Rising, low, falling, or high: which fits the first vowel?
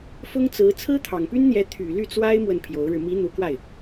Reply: high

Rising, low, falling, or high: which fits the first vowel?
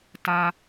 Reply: high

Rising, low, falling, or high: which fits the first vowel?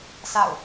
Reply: falling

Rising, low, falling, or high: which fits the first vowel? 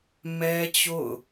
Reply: high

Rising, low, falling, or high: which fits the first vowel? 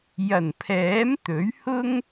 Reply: low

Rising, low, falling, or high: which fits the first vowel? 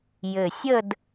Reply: low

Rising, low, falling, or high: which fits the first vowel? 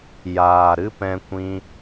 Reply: low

